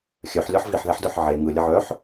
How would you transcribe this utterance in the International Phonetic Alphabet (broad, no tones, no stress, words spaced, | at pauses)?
xʲœħ lʲɒħviħðɛħdə˞ħ ʕe ŋɯ lʲəʕœħ